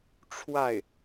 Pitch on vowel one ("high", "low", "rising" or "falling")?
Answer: falling